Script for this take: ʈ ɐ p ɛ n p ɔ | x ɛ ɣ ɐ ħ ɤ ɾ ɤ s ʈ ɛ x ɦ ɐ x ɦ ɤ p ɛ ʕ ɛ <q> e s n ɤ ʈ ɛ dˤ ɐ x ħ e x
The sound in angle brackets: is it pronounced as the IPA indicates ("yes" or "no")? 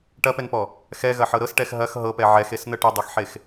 no